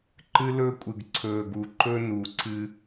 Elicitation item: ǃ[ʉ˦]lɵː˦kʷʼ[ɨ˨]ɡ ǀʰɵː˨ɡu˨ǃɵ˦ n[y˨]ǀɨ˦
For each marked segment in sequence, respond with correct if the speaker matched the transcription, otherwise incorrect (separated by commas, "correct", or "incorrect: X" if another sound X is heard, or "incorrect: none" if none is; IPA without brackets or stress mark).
incorrect: ɨ˦, correct, incorrect: u˨